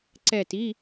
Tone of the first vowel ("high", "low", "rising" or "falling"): falling